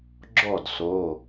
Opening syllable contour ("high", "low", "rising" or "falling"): falling